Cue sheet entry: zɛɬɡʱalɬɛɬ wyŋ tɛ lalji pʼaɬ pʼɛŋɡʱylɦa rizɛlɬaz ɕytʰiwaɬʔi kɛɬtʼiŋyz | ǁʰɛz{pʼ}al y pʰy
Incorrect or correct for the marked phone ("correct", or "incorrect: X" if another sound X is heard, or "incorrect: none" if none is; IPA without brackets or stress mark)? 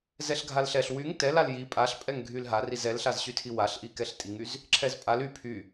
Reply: correct